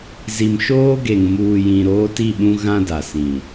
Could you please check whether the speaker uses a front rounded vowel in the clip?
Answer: no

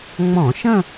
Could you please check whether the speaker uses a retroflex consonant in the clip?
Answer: no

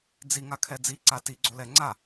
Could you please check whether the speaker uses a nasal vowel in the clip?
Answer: no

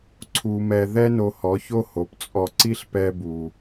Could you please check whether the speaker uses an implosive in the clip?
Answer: no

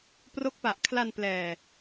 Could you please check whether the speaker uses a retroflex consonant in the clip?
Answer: no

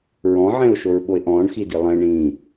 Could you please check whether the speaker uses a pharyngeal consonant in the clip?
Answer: yes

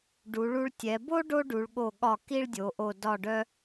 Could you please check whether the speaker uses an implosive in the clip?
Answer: yes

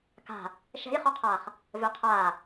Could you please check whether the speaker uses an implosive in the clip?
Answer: no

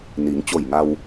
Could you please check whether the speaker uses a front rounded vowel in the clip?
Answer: no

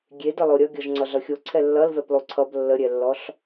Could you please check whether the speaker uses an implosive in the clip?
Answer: no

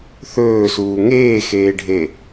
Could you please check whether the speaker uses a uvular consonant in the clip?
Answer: no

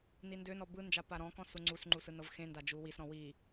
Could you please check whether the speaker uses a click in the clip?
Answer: yes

